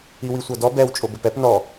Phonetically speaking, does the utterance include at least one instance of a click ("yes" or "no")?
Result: no